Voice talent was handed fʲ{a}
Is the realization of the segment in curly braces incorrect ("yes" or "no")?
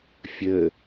yes